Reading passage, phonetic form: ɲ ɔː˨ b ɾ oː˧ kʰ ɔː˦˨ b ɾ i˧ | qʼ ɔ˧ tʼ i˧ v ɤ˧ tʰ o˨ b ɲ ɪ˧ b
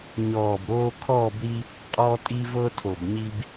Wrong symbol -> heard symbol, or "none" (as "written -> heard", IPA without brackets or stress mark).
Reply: ɪ˧ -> i˧